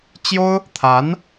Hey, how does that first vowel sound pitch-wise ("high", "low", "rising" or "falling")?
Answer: high